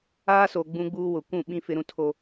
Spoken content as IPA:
aː˦so˨ ɡ͡bũ˦ɡ͡buː˦wʊ˨ kʷũ˦˨ɓĩ˦ fɪ˦ɾũ˦tʰo˦

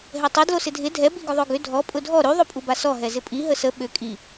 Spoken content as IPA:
ɦɛtˤe dlosɪdʱɪ dʱɛ biɡʊðˤoɡʏ dʱɔ pʼʊdʱɔ ɾy ðˤopʼubasɔ ɦɛzɪpʼi ɦəsə ɓʏ kʼi

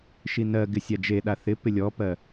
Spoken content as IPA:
ʃinɜɡɪ sʲad͡ʒeɗa θɪpɪ lʲɔpɜ

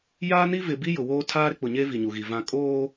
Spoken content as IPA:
jaː˦ni˦ vɪ˨bi˦ jʊ˨woː˦ tʰaː˦ɾɪ˦k͡pʊ˨ɲe˦ vi˨ɲu˨ɣi˨ vã˨ kʼoː˦

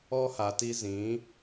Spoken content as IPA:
ɔ˦ha˨ti˦ zĩ˨˦

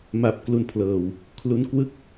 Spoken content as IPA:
ma˦˥p̚klu˧npʰlɤː˨˩w | kʰlu˦˥nkwɯ˥˩k̚

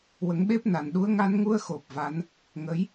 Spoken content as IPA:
wə˨˩˦ŋɓe˦˥p̚na˨˩nɗu˧˥ə̯ ŋa˧nŋu˧ə̯xo˨˩p̚ va˧˥n | ŋə˧˥j

